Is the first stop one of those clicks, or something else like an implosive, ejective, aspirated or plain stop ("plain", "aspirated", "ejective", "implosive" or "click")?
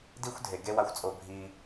plain